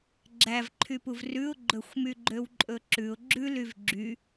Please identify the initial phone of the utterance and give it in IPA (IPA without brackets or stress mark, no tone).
ɡ͡ǁ